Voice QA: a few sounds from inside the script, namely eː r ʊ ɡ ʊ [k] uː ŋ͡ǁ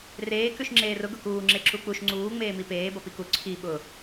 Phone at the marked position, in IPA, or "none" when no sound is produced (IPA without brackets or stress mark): k